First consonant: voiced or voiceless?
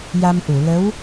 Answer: voiced